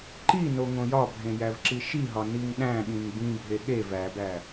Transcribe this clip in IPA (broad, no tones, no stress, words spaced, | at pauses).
ǃino ŋõjɒbʱẽ jævǁiʃiɦɒ niŋɗæ̃ɠĩŋ bĩbʱe ɠe væbæ